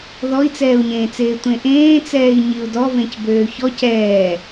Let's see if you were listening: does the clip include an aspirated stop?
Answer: no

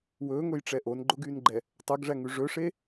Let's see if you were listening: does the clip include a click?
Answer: yes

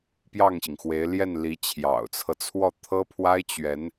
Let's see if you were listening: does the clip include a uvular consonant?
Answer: no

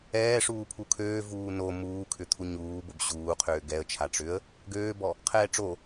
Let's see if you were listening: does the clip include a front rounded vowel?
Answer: yes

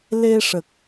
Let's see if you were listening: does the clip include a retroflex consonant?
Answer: yes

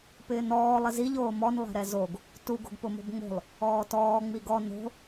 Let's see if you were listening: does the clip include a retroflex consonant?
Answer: no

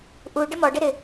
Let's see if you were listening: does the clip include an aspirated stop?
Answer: no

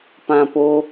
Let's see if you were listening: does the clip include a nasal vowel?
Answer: yes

